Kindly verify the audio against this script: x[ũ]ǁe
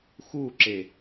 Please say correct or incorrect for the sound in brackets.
incorrect